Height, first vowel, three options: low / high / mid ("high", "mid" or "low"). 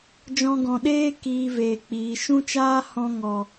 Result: mid